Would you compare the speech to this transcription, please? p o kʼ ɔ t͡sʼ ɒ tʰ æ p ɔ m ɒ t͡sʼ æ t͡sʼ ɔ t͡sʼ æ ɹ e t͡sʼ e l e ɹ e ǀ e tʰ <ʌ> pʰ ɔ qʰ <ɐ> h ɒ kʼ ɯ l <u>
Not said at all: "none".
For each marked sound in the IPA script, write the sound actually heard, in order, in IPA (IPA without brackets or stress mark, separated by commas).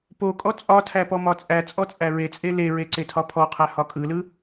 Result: ɒ, æ, ɯ